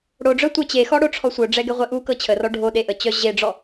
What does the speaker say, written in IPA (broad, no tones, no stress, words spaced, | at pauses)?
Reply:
ɽoɖ͡ʐœ tʷɛt͡ɕexɔ ɽoʈ͡ʂʰɔsʷœɖ͡ʐɛ ɡɛʁʷɛʔukɤ t͡ɕʰərɔ ɖʱo ɗeʔət͡ɕœ ʑeɖ͡ʐɔ